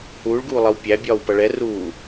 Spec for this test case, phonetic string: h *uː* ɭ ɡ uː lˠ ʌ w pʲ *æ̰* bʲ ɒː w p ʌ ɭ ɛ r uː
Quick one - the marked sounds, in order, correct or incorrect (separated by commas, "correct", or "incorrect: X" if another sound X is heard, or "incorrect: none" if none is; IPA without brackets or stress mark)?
correct, incorrect: æ